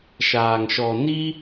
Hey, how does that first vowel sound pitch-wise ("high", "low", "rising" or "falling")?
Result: low